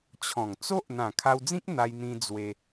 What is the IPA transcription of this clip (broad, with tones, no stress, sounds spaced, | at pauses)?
t͡ɕʰ ɔ̃˨˩ ŋ t͡s o˦ ʔ n̪ ã˨˩ kʰ a˧ w d͡z ĩ˦ k̚ n̪ a˧ j n̪ ĩ˧ d͡z w e˧